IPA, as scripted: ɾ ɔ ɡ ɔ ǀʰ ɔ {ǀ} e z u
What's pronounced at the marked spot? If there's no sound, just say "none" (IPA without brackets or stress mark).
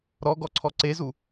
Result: ǀ